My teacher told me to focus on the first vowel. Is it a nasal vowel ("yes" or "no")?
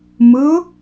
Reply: no